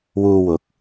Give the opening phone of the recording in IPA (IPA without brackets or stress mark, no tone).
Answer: w